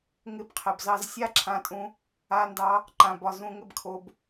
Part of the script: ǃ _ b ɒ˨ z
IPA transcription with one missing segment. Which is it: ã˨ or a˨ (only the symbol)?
ã˨